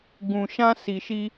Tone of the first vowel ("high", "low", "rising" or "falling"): low